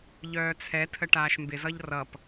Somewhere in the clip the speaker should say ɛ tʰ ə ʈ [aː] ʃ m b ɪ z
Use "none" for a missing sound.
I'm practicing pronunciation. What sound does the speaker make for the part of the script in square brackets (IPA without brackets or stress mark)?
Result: aː